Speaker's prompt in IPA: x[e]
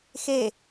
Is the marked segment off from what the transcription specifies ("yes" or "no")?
no